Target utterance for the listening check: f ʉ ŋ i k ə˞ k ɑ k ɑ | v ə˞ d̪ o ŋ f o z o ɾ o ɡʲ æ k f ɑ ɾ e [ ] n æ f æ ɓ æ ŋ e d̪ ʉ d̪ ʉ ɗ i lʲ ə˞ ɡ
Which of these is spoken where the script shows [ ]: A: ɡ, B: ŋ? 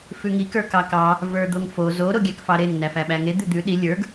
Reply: B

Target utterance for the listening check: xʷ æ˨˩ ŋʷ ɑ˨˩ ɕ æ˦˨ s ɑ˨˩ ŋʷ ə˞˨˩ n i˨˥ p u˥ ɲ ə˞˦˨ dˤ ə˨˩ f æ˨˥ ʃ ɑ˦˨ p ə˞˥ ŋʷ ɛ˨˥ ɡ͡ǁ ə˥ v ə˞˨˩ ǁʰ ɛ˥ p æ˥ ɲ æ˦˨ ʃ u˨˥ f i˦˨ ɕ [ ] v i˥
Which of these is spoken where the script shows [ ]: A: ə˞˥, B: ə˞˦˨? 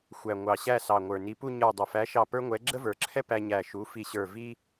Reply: B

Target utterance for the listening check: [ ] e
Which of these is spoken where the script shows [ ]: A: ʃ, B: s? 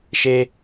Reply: A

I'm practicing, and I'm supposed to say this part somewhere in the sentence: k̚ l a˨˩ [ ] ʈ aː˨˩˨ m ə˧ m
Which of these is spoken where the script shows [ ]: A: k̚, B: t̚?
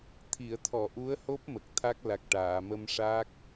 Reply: A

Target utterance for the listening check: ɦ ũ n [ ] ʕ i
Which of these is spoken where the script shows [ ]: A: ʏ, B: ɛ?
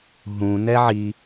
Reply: B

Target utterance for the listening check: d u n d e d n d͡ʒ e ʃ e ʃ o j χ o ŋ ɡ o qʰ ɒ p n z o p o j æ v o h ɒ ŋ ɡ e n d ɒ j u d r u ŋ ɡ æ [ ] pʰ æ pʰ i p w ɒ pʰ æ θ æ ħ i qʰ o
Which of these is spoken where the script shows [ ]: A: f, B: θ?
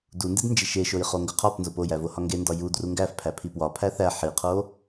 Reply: A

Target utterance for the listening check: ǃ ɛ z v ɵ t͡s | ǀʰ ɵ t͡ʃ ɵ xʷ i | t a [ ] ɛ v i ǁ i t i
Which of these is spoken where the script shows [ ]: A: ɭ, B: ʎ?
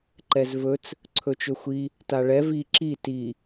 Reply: A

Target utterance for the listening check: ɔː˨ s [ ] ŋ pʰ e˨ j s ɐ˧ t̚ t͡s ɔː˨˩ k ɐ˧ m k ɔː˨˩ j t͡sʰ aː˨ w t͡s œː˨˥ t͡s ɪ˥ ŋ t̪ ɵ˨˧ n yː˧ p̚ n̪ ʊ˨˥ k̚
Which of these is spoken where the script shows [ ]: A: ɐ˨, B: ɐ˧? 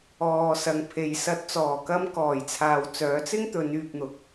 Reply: A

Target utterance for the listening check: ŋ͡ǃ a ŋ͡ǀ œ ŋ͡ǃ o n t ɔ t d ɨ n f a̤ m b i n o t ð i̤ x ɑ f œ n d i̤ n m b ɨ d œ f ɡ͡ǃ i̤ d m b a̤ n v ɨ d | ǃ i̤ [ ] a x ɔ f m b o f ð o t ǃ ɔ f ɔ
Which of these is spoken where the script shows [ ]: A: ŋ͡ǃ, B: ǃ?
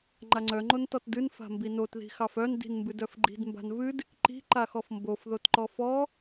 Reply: B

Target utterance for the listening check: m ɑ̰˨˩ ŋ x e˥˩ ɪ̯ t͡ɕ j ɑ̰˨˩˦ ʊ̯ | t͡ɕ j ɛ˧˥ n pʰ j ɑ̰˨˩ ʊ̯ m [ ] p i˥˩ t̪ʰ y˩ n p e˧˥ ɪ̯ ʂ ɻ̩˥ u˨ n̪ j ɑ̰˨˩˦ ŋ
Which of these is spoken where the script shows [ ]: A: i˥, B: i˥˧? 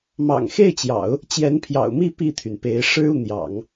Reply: B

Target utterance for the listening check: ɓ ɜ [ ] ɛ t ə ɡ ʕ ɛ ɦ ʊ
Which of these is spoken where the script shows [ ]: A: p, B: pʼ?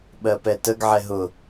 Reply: A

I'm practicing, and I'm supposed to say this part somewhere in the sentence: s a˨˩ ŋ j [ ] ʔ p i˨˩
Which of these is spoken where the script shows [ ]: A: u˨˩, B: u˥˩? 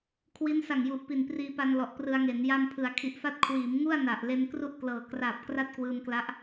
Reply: A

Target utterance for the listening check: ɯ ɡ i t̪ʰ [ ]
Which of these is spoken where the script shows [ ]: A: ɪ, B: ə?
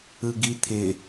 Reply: A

